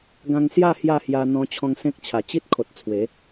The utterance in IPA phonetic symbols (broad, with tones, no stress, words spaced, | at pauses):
ɡã˧ŋsja˥˧ hja˥˧hja˧ n̪ɔ̃˧t͡ɕʰɔ̃˧ŋ sẽ˦k̚t͡ɕʰa˨˩ t͡ɕi˦t̚kʰo˨t̚ t͡sʰwe˨˦